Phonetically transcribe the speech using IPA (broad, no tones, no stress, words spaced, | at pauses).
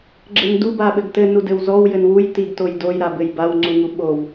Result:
ɡ͡ǁɘndu baɓɘɡtɘ nudɘwzɔw jɘnwuj tiɡtojdoj ɾabɘjbaw ŋ͡ǀuŋuɓow